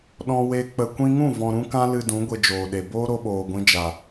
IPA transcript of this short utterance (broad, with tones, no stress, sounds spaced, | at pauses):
ɗ ɔ̃˧ w e˧ k͡p ə˧ kʷ ĩ˧ ŋ ũ˦˨ v ɔ̃˨ ɾ ũ˦ k ã˦ l ɨ˧ d ũ˨˦ ɡʷ e˧ d͡ʒ oː˨ ɗ e˨ b oː˦ ɾ o˧ ɓ oː˨ ɡʷ ĩ˧ d͡ʒ a˨